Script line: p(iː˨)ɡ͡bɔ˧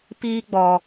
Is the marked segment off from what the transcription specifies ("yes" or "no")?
yes